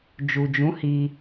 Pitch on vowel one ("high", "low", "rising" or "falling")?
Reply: low